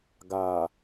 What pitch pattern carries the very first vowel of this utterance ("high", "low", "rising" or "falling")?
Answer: low